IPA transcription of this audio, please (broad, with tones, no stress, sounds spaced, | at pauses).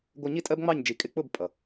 ɡʷ ʌ˧ ɲ i˦ tʼ ɜ˦ b ŋ͡m ɑ˦˨ ɲ d͡ʒ i˨ kʼ ɪ˧ k͡p ʊ˦˨ b pʼ ʌ˨